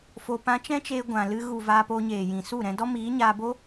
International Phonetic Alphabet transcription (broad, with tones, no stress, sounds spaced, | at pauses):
f o˨ p ã˧ t͡ʃ ɛ̃˦ t͡ʃ eː˧ ɡʷ ã˨ l ɨ˧ ɣ u˨ v aː˧ p o˧ ɲ eː˨ j ĩ˨ s u˦˨ ɾ ɛ̃˧ d ɔ˦ m iː˨˦ ɲ aː˧ b o˦